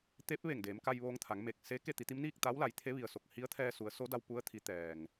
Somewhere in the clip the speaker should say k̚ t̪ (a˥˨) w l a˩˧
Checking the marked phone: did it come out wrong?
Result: yes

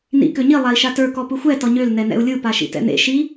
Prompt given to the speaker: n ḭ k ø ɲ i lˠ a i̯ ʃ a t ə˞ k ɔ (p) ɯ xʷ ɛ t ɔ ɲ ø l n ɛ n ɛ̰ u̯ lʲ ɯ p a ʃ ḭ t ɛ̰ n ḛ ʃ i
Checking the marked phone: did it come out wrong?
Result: no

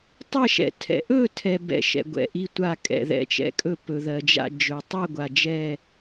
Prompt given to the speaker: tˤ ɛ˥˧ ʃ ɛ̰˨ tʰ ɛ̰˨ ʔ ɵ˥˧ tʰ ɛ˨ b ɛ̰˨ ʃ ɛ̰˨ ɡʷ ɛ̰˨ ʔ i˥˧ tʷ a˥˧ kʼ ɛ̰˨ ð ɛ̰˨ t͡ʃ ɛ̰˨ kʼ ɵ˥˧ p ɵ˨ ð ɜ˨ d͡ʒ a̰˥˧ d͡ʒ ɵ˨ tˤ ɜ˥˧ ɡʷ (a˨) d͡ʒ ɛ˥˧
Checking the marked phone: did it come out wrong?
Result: no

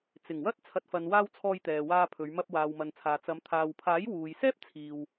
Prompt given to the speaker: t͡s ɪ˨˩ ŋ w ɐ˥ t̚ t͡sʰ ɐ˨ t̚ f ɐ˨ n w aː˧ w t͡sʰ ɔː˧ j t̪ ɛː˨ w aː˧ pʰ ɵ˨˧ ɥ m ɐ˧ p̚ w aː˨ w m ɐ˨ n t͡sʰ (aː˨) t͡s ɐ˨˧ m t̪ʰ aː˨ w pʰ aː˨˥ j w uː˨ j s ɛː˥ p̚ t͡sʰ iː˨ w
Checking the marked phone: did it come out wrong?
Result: no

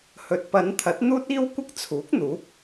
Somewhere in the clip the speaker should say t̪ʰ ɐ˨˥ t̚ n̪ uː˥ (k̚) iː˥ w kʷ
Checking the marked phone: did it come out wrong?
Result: yes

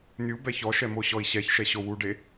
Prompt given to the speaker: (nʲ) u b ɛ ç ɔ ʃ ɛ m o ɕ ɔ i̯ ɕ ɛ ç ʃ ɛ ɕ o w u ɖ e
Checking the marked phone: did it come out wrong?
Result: no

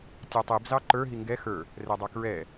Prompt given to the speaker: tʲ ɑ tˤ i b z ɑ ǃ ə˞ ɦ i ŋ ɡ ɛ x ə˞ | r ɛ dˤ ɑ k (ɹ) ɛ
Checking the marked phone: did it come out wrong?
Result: no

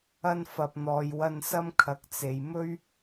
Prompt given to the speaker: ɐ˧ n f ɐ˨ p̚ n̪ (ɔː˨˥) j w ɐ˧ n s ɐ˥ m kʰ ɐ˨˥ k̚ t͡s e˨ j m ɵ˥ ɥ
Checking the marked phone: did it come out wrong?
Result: yes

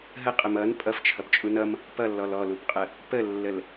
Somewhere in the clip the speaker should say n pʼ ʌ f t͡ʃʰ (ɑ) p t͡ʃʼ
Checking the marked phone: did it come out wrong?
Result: yes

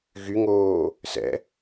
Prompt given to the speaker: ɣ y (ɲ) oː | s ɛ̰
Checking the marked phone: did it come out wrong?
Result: yes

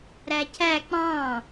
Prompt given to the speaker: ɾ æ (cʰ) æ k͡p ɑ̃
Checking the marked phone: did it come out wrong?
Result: no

